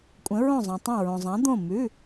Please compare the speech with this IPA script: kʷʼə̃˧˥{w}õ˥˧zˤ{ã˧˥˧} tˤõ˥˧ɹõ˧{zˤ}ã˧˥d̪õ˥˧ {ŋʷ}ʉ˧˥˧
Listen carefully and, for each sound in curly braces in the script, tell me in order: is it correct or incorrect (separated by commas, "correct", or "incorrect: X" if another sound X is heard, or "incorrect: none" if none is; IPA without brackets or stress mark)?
incorrect: ɹ, incorrect: ã˧, correct, incorrect: m